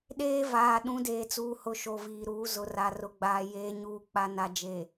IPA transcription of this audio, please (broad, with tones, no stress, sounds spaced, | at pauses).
ɗ eː˦ v aː˨ ɗ ũ˨˦ d eː˨ t͡s uː˨ h ʊ˨ ʃ o˨ v iː˨ ɾ uː˨˦ z ʊ˨ r a˨ r ʊ˨ ɡ͡b aː˨ j eː˦ ɲ uː˦ k͡p a˦ n a˨ d͡ʒ eː˨